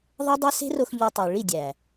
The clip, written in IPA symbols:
ðˤe˦dˤi˦ se̤˦ro˧x ʎo˧tˤu˨ ɭi˦˨dʲæ˨

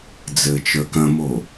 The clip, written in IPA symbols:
d͡zɘt͡ʃə˞kɐ̃mo

